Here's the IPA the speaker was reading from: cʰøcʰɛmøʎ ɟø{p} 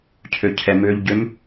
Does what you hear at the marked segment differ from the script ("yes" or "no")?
yes